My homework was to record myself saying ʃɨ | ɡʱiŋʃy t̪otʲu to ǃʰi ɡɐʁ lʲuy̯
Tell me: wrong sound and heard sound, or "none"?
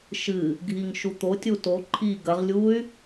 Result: y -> u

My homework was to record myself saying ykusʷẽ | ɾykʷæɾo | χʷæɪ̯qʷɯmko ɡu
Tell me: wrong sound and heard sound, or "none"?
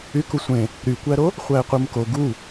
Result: none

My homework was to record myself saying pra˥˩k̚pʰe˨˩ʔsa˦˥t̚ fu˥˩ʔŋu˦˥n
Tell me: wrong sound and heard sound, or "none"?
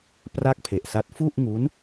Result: none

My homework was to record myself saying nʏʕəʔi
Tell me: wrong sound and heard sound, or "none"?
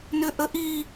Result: ʕ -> ʔ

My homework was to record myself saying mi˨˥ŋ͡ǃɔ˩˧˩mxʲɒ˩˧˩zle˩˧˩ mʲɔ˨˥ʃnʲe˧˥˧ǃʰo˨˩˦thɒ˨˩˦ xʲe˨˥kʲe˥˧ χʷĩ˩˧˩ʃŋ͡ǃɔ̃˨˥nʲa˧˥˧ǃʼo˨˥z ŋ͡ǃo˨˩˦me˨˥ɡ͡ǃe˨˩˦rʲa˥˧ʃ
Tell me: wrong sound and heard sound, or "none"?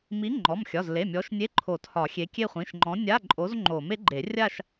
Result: none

